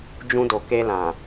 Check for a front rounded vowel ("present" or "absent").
absent